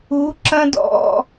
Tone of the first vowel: rising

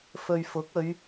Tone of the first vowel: low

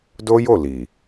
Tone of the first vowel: high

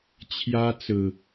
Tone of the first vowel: high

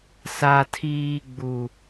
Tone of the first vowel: high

